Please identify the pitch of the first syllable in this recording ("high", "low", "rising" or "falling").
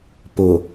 low